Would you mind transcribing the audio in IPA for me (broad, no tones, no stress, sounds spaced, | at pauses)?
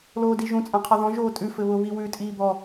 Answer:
l oː d i ʒ ũ t͡sʼ ã qʰ ɔ ð ɔ̃ ʒ oː tʼ ʉ f ɘ β ʊ β i w ʉ tʼ iː b ɔ